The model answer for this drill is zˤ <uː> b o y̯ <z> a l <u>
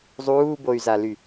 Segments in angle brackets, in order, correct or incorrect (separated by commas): correct, correct, incorrect